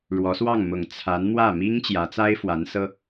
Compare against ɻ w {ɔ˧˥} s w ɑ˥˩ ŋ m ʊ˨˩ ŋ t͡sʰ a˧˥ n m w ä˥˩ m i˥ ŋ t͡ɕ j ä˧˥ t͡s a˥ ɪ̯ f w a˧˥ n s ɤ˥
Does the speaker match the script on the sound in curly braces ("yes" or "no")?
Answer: yes